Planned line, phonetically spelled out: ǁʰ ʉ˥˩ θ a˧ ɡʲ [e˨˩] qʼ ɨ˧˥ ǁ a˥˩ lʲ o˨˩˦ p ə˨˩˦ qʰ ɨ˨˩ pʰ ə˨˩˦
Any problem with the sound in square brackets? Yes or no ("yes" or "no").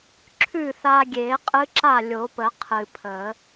yes